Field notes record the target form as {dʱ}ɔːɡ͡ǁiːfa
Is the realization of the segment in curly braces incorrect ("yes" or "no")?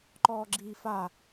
yes